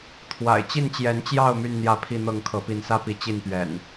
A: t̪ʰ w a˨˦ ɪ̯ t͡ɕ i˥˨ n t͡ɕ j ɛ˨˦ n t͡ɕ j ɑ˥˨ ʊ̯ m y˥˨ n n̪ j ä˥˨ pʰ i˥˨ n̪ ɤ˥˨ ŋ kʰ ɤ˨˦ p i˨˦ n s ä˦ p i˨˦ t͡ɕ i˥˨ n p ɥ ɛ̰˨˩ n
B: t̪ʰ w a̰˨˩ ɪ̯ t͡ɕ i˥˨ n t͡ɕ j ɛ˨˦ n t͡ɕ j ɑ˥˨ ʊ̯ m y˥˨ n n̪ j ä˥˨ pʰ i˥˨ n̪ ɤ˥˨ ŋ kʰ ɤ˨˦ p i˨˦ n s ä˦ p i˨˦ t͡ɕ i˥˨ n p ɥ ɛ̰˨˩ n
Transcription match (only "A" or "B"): B